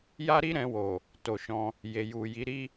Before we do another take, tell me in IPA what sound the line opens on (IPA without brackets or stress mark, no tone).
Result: j